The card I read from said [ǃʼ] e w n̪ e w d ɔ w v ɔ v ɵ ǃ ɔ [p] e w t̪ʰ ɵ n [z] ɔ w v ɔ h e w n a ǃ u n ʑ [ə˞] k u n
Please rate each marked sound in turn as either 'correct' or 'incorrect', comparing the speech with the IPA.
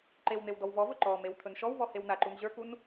incorrect: ǃ, incorrect: m, incorrect: ʃ, correct

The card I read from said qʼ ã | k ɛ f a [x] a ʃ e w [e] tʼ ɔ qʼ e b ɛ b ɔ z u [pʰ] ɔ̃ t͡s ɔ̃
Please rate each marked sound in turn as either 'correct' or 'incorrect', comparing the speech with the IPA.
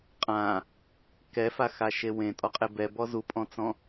correct, incorrect: ẽ, incorrect: pʼ

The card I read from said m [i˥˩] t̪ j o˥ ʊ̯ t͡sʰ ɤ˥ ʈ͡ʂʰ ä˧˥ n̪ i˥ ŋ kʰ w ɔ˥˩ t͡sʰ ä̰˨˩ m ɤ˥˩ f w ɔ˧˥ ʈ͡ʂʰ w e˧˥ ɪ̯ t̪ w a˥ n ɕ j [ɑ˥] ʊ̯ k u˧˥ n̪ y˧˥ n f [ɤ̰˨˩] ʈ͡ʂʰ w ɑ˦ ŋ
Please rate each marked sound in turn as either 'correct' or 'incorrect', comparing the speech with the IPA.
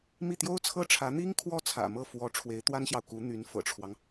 correct, incorrect: ɑ˨, correct

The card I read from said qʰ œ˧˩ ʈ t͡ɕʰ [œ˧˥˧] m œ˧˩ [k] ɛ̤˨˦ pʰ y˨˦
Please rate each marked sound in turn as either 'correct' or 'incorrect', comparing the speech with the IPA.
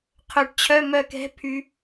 correct, correct

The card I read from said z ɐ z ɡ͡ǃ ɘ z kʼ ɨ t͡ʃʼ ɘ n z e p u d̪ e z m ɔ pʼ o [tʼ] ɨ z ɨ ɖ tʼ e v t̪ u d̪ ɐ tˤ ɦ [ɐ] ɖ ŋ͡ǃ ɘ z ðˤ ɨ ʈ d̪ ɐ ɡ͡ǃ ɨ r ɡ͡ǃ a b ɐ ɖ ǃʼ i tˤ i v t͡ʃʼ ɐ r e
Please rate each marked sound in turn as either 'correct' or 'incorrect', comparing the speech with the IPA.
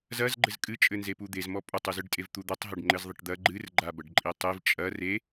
incorrect: tˤ, correct

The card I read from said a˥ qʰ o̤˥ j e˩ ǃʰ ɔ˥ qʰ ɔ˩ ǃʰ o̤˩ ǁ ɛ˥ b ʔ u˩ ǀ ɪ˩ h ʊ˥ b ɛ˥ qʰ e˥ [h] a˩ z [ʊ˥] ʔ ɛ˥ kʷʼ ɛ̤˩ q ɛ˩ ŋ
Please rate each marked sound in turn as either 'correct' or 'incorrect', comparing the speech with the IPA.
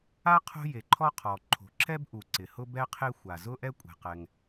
incorrect: xʷ, correct

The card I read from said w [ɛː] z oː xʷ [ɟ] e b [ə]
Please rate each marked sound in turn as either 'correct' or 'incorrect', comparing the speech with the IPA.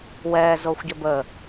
correct, correct, correct

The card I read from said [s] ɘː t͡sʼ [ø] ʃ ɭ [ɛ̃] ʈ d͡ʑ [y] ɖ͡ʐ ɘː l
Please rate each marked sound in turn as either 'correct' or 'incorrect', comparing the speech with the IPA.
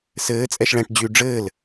correct, incorrect: ɛ, correct, correct

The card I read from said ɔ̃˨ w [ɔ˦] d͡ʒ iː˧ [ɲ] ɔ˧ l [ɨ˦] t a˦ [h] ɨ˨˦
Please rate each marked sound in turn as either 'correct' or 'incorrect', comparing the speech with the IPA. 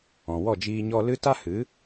incorrect: ɔ˦˨, correct, correct, correct

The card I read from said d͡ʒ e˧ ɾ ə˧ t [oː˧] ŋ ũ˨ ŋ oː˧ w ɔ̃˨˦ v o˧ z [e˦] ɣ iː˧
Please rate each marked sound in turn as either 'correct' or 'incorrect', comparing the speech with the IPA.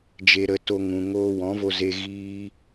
incorrect: o˧, incorrect: e˧

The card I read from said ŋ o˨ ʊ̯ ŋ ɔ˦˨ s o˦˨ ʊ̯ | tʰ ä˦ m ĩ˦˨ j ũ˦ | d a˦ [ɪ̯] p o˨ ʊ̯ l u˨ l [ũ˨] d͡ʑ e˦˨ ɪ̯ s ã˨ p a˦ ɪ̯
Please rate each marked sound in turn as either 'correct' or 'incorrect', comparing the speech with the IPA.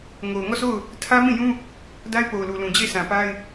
correct, correct

